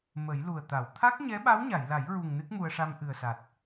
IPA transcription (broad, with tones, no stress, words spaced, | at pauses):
mə˨˩˦jlu˨˩ə̯t̪a˨˩˨w t̪ʰa˦˥k̚ɲɛ˧˥ ɓa˧˥wɲa˨˩˨jla˨˩˦jɹu˨˩ŋ nɨ˦˥k̚mu˧ə̯ʂa˧m ʔɨ˨˩ə̯sa˨˩t̚